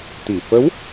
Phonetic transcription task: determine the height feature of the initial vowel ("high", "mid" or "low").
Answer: high